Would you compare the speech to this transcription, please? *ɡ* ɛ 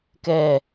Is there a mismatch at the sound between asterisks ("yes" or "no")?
yes